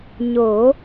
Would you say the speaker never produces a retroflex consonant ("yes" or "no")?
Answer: yes